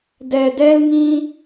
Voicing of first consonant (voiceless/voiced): voiced